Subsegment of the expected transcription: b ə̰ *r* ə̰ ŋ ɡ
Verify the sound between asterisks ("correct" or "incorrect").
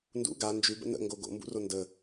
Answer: incorrect